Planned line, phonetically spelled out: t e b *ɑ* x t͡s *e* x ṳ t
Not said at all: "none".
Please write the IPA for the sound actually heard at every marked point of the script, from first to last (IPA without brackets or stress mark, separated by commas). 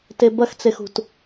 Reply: ɐ, e